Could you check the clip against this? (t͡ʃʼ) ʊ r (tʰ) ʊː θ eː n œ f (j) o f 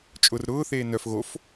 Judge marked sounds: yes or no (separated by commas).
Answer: yes, no, no